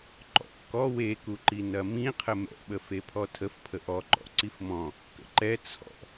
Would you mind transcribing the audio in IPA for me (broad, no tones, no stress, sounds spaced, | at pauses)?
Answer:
ǃ ɔ̰ k ɔ w e k u ǃ i n ɐ m ĩ qʰ ə m ɛ̰ ɓ ə f e pʰ ɔ tʰ ə f pʰ ə ʔ ɔ ǃ ɔ̰ ǀ i f m ɔ̃ | k ə̰ ǃ ɛ t͡sʰ ɔ̰